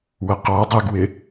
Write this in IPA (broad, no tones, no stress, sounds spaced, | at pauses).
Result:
w ə q ɔ dˤ ɛ ɡ w ɪ